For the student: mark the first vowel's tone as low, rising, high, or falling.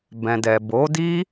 low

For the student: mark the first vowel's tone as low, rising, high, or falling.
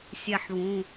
falling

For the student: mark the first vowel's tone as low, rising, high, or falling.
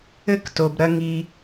falling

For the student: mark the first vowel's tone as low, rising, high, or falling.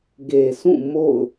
low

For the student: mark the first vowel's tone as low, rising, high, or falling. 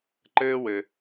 high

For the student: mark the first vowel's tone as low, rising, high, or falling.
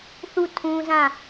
falling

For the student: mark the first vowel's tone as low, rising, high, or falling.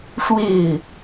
falling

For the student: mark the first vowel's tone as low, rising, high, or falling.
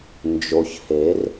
low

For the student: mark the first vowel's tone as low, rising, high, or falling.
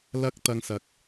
high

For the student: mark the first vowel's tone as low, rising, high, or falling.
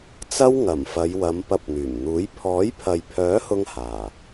high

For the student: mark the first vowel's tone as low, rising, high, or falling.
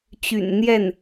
low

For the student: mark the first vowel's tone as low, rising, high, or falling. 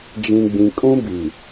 low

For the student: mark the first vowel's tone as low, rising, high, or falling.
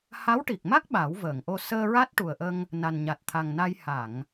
rising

